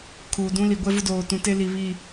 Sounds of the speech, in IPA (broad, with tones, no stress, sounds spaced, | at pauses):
kʰ uː˨ d ũ˦ l i˨ ɡʷ ɛ˦ v ʊ˦ d oː˨ t ũ˨ t e˦ l i˨ β i˦˨